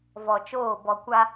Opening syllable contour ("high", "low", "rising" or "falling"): low